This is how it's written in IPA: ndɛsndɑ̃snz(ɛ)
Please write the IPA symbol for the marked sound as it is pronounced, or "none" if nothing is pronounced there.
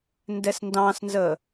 ə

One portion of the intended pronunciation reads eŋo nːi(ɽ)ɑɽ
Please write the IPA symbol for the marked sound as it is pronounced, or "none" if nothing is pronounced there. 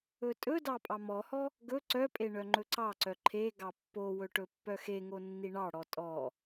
ɳ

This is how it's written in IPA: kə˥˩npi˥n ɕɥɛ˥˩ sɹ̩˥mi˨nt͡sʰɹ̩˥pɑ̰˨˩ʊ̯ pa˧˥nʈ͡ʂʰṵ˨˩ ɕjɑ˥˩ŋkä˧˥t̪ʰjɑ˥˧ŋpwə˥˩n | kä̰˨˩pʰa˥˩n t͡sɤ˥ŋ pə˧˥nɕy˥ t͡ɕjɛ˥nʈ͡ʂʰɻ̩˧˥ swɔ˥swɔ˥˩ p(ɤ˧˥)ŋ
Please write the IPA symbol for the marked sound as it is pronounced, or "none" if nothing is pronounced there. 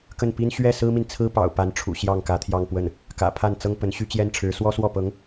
ɤ˧˥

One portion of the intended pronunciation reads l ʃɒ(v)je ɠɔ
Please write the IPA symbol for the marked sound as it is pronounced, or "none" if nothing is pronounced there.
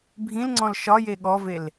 none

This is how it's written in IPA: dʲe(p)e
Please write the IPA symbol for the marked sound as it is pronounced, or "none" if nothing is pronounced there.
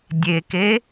k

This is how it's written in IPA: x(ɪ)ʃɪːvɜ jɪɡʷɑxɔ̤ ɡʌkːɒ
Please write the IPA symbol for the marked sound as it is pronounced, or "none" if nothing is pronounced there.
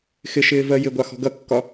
ɪ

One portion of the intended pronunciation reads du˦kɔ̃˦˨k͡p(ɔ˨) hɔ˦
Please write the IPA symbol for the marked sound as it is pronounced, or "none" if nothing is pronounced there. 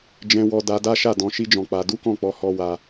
ɔ˧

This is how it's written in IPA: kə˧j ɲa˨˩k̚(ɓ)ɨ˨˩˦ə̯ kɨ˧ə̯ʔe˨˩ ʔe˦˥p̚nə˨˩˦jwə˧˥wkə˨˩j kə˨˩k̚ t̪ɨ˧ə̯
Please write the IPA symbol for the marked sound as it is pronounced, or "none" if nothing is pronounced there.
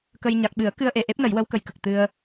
ɓ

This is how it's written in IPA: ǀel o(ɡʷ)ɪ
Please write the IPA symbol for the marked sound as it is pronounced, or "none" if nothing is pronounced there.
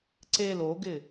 ɡ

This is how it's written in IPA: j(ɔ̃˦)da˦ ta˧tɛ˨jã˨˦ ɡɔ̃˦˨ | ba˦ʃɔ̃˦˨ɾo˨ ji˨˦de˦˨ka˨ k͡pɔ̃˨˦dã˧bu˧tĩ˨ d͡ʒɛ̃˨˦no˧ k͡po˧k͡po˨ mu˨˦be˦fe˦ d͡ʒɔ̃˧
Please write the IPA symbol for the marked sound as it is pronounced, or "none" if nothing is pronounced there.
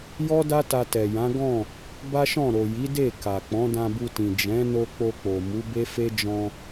ɔ˦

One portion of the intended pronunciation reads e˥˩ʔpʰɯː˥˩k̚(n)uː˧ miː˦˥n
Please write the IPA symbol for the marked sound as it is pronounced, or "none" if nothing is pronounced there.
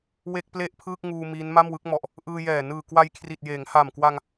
ŋ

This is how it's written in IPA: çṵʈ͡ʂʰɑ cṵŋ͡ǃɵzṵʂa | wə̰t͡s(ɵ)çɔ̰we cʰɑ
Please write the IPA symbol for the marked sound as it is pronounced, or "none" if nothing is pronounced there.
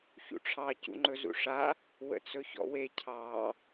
ɵ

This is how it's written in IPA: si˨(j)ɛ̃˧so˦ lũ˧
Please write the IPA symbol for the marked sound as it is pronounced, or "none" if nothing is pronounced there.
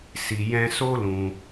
j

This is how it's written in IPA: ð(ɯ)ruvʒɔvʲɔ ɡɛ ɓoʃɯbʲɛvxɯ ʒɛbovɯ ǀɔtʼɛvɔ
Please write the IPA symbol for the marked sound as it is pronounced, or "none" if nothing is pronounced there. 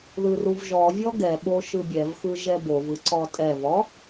ɯ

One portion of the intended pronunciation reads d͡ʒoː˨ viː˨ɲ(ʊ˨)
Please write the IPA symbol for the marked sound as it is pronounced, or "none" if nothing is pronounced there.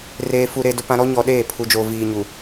u˨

